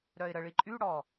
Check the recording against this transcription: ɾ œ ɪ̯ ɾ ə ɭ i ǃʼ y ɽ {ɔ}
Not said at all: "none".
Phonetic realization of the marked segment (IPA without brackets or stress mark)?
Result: ɔ